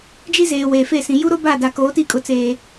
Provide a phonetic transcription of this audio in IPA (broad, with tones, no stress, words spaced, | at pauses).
d͡ʒi˦zeː˨ weː˨fe˦˨sĩ˨ ju˦ɾo˦ ba˦˨da˨koː˨˦ti˦˨ kʼʊ˨t͡seː˨